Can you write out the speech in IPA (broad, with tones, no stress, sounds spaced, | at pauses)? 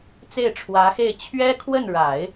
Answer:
t͡s e˥˩ ɪ̯ ʈ͡ʂʰ w ä˧˥ x e˥˩ ɪ̯ t͡ɕʰ ɥ ɛ˥ kʰ w ə˥˩ n ɻ a˨˩˦ ɪ̯